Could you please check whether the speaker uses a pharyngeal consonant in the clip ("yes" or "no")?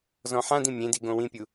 yes